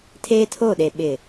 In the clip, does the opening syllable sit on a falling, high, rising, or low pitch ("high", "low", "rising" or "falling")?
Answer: high